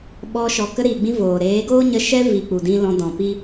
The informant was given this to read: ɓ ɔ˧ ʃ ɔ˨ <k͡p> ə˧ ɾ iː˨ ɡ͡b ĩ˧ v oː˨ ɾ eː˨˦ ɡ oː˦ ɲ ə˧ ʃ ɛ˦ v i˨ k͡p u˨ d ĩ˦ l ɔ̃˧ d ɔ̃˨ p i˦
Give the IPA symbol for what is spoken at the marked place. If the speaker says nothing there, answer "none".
k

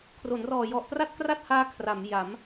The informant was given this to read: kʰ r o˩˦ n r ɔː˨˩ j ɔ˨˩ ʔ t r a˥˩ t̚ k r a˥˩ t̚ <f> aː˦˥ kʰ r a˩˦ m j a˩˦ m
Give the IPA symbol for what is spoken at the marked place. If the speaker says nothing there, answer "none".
h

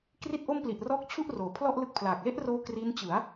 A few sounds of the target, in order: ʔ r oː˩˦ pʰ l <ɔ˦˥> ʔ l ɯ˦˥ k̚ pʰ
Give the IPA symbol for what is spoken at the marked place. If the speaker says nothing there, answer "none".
ɔ˥˩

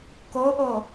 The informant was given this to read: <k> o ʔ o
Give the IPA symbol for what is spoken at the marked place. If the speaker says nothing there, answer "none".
k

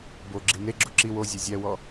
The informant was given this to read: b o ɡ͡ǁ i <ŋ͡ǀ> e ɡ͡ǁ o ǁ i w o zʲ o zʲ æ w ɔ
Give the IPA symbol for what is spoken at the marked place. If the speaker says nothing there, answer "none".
n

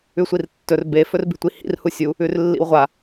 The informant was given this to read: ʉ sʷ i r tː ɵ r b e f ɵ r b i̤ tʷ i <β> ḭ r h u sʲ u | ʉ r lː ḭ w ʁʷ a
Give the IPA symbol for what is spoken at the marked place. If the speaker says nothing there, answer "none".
h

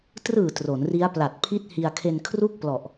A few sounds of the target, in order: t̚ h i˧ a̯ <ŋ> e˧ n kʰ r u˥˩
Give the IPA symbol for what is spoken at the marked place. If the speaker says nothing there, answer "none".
kʰ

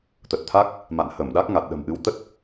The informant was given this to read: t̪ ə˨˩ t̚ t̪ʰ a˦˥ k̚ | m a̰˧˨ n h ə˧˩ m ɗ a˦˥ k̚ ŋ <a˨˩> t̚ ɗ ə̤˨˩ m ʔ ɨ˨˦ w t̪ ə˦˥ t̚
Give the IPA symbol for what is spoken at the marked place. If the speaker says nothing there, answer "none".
a˨˩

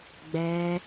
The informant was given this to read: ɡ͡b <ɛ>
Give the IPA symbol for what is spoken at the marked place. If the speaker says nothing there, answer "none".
ɛ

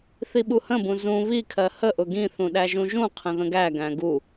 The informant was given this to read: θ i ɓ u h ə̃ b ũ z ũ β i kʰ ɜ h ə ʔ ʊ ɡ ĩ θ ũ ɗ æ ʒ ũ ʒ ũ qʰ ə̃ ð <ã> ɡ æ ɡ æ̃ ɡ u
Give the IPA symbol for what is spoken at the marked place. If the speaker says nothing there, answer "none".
ə̃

